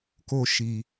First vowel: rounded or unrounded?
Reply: rounded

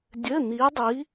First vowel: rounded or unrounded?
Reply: unrounded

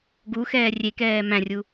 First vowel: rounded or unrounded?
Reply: rounded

